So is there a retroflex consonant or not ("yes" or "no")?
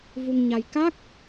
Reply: no